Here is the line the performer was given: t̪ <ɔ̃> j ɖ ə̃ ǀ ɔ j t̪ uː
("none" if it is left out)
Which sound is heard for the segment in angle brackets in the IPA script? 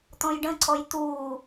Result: ɔ̃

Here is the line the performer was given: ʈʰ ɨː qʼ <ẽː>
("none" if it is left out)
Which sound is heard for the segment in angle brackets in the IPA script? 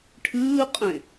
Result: ẽ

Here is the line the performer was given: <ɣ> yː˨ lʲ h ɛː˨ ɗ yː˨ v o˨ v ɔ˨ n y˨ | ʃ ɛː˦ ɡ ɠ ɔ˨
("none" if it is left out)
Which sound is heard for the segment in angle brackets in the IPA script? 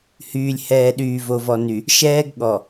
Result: h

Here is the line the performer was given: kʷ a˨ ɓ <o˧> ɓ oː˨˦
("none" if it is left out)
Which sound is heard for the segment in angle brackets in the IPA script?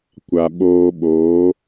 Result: oː˧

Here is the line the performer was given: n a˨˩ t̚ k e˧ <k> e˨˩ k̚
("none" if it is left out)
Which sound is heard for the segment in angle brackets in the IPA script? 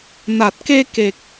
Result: k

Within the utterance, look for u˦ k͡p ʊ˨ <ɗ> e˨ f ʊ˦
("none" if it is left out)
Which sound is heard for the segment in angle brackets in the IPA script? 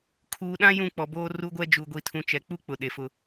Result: ɗ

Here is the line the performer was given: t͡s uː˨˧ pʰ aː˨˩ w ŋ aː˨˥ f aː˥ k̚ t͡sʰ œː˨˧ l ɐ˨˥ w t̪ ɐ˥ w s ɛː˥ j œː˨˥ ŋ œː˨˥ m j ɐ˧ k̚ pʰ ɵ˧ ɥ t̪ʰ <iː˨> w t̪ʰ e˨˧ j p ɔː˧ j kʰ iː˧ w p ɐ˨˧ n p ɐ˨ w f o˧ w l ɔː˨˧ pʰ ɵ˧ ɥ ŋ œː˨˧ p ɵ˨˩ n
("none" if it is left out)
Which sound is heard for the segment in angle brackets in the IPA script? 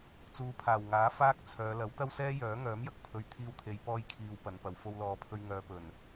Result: iː˧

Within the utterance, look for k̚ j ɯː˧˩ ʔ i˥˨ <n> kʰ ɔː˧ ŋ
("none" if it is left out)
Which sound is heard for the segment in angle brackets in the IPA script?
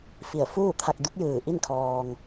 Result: n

